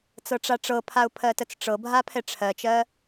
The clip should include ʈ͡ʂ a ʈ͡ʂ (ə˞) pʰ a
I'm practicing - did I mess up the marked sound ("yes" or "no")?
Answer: yes